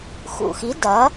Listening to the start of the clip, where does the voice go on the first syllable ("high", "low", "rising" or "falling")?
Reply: low